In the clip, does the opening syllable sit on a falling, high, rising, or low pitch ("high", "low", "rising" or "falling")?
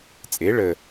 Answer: rising